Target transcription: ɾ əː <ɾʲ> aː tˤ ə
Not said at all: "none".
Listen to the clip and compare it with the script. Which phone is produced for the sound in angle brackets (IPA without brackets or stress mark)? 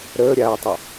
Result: ɾʲ